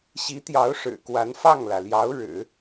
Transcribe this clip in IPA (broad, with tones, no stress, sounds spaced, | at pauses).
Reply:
ɕ i˧˥ t̪ j ɑ˧˥ ʊ̯ ʂ ɻ̩˨˩ k w a˧˥ n f ɑ˥˩ ŋ l ä˩ l j ɑ˧˥ ʊ̯ ɻ ɻ̩˨˩˦